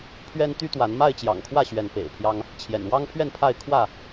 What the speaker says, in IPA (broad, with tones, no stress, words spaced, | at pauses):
pʰɥɛ˦nt̪y˦t̪wa˨˦n ma˥˨ɪ̯t͡ɕjɑ̰˨˩ŋkʰwä˥˨ɕɥɛ˨˦n pḛ˨˩ɪ̯pʰjɑ˦ŋ | t͡ɕʰjɛ̰˨˩n wɑ˦ŋpʰɥɛ˥˨npʰa˥˨ɪ̯ kʰwä˥˨